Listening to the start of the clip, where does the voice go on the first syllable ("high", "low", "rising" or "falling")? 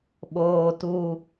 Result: high